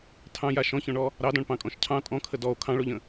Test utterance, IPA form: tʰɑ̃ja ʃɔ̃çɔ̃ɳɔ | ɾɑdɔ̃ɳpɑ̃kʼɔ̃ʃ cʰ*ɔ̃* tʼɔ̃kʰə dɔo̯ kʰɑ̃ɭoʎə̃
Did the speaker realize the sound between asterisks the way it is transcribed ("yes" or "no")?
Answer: no